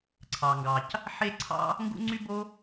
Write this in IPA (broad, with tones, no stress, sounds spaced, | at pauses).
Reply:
ǀʰ ɑ˩ ŋ ɡ ɑ˩ c | ħ e˥ ǀʰ ɑ̰˥ | ŋ ɡ ṵ˥ ŋ͡ǀ y˥ b o˥